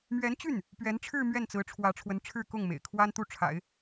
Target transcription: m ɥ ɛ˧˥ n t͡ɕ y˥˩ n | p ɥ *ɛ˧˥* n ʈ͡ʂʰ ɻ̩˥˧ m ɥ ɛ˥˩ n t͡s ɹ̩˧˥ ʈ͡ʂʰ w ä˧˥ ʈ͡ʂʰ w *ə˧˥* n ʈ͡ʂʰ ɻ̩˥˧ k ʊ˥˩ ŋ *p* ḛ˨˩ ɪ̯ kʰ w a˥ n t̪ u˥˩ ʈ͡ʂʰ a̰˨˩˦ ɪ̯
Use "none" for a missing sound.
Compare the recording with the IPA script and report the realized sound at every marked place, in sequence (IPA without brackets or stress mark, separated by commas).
ɛ˧˥, ə˧˥, m